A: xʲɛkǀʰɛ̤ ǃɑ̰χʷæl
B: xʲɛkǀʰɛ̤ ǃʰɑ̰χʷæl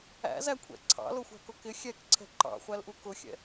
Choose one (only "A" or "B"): A